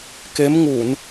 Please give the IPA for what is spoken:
k e˨˦ m ŋ u˧˩˨ n

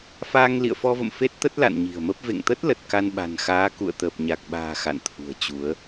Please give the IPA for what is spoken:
f aː˧ ŋ l ḭ˧˨ ə̯ f ɔ˧ v ə̰˧˨ m f e˦˥ t̚ t̪ ə˦˥ t̚ l a̰˧˨ n ɲ i̤˨˩ ə̯ m ə˦˥ p̚ v ḛ˧˨ ŋ t̪ ə˦˥ t̚ l ə˨˩ t̚ k a˧ n ɓ a̤˨˩ n x aː˨˦ k ṵ˧˨ ə̯ t̪ əː˨˩ p̚ ɲ a˨˩ k̚ ɓ a̤ː˨˩ x a̰˧˨ n t̪ʰ ṳ˨˩ ə̯ t͡ɕ u˨˦ ə̯

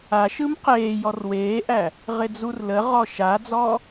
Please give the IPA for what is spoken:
a ʃ ɯ m q eː j ɔ r w eː ʔ æ | ʁ ɪ d͡z u r l ə ʁ ɔ ʃ a d͡z ɔ

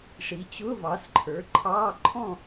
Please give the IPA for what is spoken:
ʂ i˩˥ t͡ɕ ʊ˧˥˧ v ɑ˩˥ s ǃʰ ə˞˩˥ ǃʰ ɑː˧˥˧ ǃʰ ɔ̃˥˨

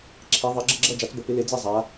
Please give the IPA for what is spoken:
ǁʰ e˨˦ ðˤ ʌ˨˦ ɡ͡ǁ ə˥˧ ɡ͡ǁ ʌ˥˧ d͡ʒ a˨˦ t͡s b ə˨˦ p ɪ˨˦ l e˨˦ d͡z e˥˧ zˤ a˨˦

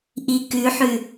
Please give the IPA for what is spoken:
ʔ i k ʉ ħ ʉ

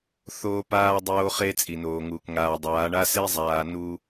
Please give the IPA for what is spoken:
θ oː˦ p aː˦ dˤ oː˦ χ e˦ t͡sʼ i˨ n oː˨ ŋ uː˨ k ŋ aː˨ dˤ aː˨˦ ɳ a˦ s e˦ zˤ aː˨ n u˦

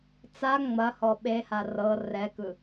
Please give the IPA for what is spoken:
t͡s a ŋ͡m ɐ h ɔ ɓ e h a r ɤ r ɛ k ɯ

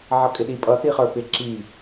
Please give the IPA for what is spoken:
ʕ ʌ kʼ ɪ ɗ i pʼ ʌ θ i χ ə˞ p ɪ ǁ i

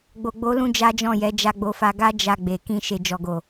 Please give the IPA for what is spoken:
ɡ͡b o˨ ɡ͡b o˨˦ l ũ˧ d͡ʒ a˦ d͡ʒ ɔ̃˦˨ j ɛ˨˦ d͡ʒ a˧ ɡ͡b o˧ f a˧ ɡ a˦ d͡ʒ a˧ ɡ͡b e˨ k ĩ˧ ʃ e˨ d͡ʒ ɔ˨ ɡ o˨

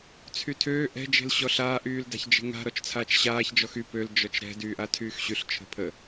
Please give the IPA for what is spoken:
t͡sʰ y tʰ øː ʔ ɛ̤ d͡ʒ e̤ l ɕ ɔ ɬ aː ʔ yː l d a̤ ç d͡ʒ e̤ ŋ a̤ ɾ ɔ t͡ʃ t͡sʰ aː t͡ʃ ɕ aː ç d͡ʒ ɔ x y p ø l d͡ʒ ɔ t͡ʃ ɾ ɛ̤ d yː ʔ a tʰ yː x ɕ y ɬ t͡ʃʰ ə̤ pʰ ə

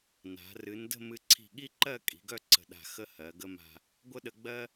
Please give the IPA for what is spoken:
n a̤˩˧ r ɨ˩˧ n d ə̤˥˧ m ɨ˧ ǀʰ i̤˧˩ ɠ i˥ ǃ ɜ˥˧ kʼ i̤˩˧ ɡ œ˥˧ ǀ ə̤˧˩ ɗ a̤˧˩ x ə˥ h ɜ˩˧ ɡ ə˥ m a̤˥˧ | ɡʷ ə˥ ɗ ə˧ ɡ͡b ɜ˥

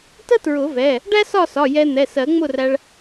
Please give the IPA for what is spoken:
t ə˥ t ɹ ʊ˨˩˦ v ɛ˩˧˩ | ɖ æ˥ s ɒ˥˨ s ɒ˩˧˩ j ɛ˧ n̪ ɛ˩˧˩ s ɜ˨˩˦ ŋ͡m ʊ˥˨ r æ˧ ɭ

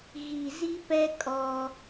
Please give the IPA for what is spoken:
ɣ i˨ z i˦ p ɛ˦ kʼ ɔ˦

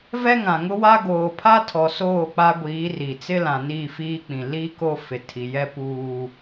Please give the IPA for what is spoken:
v ɛ˦ ŋ ã˨ ŋ ʊ˦ w a˦ ɡ oː˨ pʰ a˦ tʰ ɔ˨ s oː˦˨ k͡p a˦ ɡʷ iː˨˦ r i˨ t͡s ɪ˦ l ã˨ n iː˦˨ f iː˦ k͡p ĩ˨ l i˦ k o˦ f ɪ˨ tʰ i˨ j ɛ˦ p uː˦

